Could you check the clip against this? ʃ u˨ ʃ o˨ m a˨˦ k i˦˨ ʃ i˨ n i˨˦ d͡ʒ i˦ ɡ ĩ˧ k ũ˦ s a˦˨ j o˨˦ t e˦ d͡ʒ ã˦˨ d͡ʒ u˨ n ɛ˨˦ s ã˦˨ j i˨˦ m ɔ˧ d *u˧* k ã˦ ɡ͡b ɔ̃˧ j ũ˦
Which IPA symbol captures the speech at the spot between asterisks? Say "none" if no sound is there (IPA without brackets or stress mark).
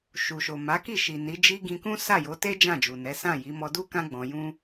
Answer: u˦